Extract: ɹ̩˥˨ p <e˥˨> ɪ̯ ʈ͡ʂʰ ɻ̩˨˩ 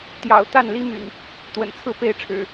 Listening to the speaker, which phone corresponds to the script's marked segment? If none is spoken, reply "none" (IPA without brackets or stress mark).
e˥˨